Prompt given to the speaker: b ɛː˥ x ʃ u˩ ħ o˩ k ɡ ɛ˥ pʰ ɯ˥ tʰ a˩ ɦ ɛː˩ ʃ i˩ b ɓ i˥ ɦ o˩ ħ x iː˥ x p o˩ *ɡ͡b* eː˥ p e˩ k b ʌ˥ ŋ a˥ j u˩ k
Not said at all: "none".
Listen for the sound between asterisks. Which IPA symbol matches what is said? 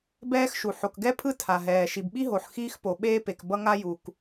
ɓ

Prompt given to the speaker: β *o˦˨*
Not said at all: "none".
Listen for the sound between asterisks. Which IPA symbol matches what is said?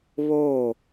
o˦˨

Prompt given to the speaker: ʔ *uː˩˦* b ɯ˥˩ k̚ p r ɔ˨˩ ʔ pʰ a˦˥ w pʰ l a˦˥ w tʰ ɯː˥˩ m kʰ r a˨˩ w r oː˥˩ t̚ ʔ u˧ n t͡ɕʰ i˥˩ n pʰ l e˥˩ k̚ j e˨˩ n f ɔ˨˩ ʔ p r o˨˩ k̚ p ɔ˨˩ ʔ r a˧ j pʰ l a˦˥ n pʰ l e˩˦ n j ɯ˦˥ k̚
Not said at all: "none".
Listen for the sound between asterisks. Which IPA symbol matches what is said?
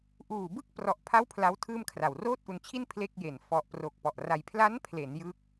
uː˨˩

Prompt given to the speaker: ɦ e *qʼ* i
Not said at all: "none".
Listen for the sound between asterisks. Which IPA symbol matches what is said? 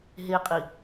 qʼ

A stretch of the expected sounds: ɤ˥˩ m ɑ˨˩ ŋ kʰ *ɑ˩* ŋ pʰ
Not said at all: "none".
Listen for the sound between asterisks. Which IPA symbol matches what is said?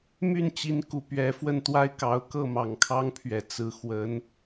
ɑ˥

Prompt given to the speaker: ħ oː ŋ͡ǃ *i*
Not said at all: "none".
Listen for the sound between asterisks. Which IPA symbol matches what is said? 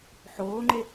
e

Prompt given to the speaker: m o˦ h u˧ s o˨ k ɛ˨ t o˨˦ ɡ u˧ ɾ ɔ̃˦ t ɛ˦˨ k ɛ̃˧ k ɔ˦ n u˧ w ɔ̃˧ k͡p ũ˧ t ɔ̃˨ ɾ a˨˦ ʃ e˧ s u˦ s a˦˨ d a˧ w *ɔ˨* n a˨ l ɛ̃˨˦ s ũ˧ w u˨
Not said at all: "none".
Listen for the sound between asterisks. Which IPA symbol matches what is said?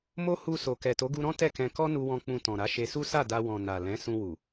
ɔ̃˨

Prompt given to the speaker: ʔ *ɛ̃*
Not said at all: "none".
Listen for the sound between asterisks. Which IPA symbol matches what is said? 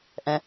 ɛ̃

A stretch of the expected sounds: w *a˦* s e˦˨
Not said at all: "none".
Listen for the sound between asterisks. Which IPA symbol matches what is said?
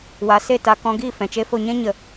a˨˦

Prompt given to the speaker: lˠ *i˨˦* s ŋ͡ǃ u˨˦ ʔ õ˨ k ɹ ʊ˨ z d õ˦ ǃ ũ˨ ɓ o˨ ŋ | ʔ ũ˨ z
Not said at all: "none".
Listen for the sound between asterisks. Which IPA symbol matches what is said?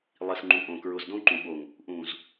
i˨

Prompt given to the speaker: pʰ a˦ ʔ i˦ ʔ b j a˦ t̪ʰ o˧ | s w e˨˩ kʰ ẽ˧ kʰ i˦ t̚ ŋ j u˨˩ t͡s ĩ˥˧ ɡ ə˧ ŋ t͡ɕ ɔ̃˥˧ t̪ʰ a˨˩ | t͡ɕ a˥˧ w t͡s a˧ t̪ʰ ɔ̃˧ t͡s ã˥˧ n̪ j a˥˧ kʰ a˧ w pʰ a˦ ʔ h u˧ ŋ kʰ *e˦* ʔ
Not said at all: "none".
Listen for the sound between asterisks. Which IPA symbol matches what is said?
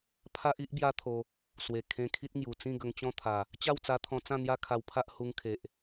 e˨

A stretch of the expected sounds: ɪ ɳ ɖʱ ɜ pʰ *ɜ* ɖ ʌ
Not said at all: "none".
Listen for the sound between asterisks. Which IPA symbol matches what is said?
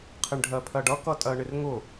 ɜ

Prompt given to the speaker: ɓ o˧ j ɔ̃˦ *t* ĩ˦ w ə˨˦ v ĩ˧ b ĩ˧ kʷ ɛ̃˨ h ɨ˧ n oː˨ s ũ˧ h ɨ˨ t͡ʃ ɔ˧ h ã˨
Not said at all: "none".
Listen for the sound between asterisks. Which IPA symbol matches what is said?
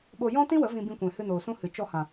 t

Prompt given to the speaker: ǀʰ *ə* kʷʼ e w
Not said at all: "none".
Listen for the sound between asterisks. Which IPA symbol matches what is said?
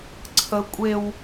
ə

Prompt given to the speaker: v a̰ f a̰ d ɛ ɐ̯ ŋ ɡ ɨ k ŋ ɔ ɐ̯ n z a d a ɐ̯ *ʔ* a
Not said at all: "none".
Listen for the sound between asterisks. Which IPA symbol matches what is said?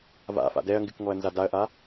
ʔ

